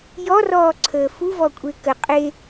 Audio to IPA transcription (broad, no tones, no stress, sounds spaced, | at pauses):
j ɔ r ɔː ǀʰ əː f u v ɔ kʷʼ e k ə qʼ e